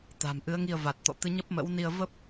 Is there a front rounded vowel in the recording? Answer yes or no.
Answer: no